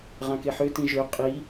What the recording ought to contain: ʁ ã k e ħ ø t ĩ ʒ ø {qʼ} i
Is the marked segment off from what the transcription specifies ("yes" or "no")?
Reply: no